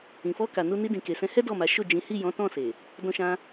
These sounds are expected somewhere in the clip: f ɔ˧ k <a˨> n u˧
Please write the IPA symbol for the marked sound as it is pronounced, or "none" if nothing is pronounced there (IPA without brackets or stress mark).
a˨